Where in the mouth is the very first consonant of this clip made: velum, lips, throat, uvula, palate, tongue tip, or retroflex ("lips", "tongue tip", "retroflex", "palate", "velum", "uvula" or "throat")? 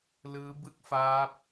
tongue tip